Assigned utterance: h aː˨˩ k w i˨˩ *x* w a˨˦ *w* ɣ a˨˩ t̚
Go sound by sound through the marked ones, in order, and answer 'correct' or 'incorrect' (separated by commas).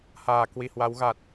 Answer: incorrect, correct